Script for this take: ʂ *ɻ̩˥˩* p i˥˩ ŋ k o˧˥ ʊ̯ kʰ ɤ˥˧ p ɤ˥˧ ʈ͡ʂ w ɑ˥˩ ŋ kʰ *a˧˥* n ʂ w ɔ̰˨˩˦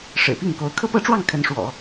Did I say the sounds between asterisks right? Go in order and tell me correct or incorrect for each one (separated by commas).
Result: incorrect, incorrect